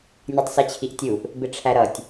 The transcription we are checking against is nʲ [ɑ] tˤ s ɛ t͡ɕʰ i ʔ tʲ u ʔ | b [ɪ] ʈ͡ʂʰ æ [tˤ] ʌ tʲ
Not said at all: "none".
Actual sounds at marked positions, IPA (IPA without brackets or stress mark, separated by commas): ɑ, ɪ, ɾ